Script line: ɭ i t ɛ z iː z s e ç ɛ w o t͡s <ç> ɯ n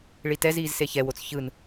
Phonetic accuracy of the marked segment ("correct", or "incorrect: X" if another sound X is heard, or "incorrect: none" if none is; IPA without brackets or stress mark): correct